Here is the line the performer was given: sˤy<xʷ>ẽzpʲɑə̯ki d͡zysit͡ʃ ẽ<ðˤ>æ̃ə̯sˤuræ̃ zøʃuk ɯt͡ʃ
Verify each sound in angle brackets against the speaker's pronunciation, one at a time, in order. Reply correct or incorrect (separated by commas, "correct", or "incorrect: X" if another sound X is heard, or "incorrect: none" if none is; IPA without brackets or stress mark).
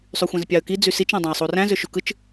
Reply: correct, incorrect: dˤ